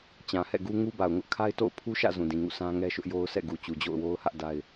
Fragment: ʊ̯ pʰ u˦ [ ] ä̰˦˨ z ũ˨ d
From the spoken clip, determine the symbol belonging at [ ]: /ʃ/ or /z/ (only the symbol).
ʃ